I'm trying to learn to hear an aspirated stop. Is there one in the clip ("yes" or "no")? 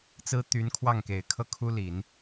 yes